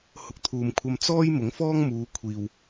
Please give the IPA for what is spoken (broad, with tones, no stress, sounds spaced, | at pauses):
h ʊ˧ k̚ t̪ʰ uː˨ m kʷʰ ɐ˧ m t͡s ɔː˥ j m ʊ˨˥ ŋ f ɔː˥ ŋ m uː˨˧ kʷʰ iː˨ w